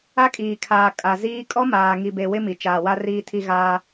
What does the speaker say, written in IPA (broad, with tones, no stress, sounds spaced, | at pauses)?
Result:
a˦ kʼ iː˨ kʰ aː˨ kʼ a˨ z iː˦ kʼ ɔ˦ m aː˨ ŋ i˨ b e˨ w ɪ˦ m i˨ t͡ʃ aː˨ w a˦ r iː˨ tʰ i˨ ɣ aː˦